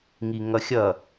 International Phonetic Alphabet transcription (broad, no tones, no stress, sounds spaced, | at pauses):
ŋ i ŋ ʌ xʲ ʌ